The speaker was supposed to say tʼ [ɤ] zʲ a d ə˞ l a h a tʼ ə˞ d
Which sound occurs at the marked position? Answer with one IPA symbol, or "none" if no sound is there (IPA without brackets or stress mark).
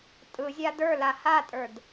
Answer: ɯ